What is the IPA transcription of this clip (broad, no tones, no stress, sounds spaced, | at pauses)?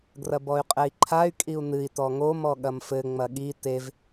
ɡ r ɐ b ɔ y̯ qʼ ɛ i̯ ǃʰ a y̯ kʼ i u̯ n ɨ i̯ t ɔ ŋ o m ɔ ɠ ɐ m f ɘ ŋ͡m ɐ ɠ i t e v